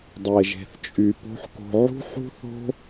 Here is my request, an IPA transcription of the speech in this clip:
dˤe˨ʒe̤˨θt͡ʃʼy˨ po̤˦ħko̤˧ ʕṳ˦ħṳ˦θo̤˦

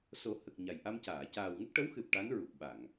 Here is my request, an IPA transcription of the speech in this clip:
so˨˩˦hə˨˩k̚ ɲa˨˩jʔa˧mcaː˨˩˨ caː˨˩wŋə˦˥k̚ʈə˧˥wxɨ˨˩p̚ ʈa˧˥n ɹu˨˩k̚ɓa˨˩˨ŋ

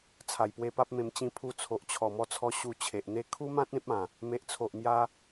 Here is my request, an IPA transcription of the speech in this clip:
t͡sʰa˨˩jpwe˧pa˦p̚mẽ˧m t͡ɕĩ˧pʰu˧ t͡sʰo˨ʔt͡ɕʰɔ˨˩mɔ˧t͡sʰɔ˧ ɕu˧ t͡ɕʰe˨ʔn̪e˦ kʰu˦mã˦t̚ ẽ˦p̚ã˨˩ | me˨ʔt͡sʰo˨ʔmja˧

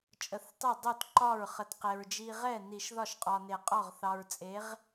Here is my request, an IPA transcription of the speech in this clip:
t͡ʃʼə˨˩˦θ tˤe˥˩ dˤo˥˩tǃɒ˥˩ɹχə˨t qe˨ɹd͡ʒi˦ ʁɛ˥˩ni˨˩˦ʃ ðɒ˥˩ʃqʼɒ˨ ne˨˩˦qʼɔ˥˩ʁ θɑ˨ɹt͡sʼe˨˥ʁ

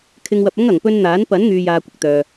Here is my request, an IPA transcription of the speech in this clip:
kʰɪ˧ŋwɐ˧p̚ɐ˥ŋ ɐ˨ŋ pɵ˧nn̪aː˨˥n pɐ˨˥nŋyː˨jaː˨ kʷɪ˨k̚t̪œː˨

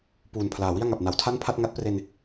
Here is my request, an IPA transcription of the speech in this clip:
puː˨˩npʰlaː˨˩wi˥˩a̯ŋa˨˩p̚ na˩˦wtʰa˥˩npʰa˥˩t̚ ŋa˦˥t̚pre˧n

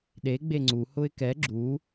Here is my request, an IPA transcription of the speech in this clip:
ɗe ɡ͡beŋ͡ǀu hʊɪ̯kɛ ɡ͡ǁu

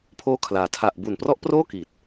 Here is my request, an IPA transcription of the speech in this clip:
pʰoː˦˥kʰlaː˩˦ tʰa˨˩ʔbu˨˩nprɔ˦˥ʔproː˥˩ ki˨˩t̚

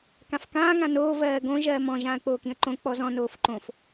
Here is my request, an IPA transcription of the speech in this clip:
kãfkãː ŋãnoː vɜːɡõ ʒɜːmɔ̃ ʒãːə̯k͡poːkĩə̯ǃõ k͡pɔzɔ̃ noːfǃõf

